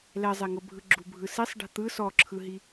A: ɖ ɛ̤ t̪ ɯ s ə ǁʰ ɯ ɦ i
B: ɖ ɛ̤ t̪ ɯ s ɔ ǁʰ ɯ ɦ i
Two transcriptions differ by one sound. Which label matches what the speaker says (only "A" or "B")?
B